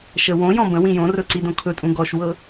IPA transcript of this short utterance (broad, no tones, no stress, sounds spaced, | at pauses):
ʃ ə w õ j ɔ̃ b ə̃ w ĩ j õ r ɵ ǀ i d õ kʰ ɵ tʼ ũ ɡ ɔ ʃ w ɤ